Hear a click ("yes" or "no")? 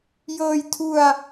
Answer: no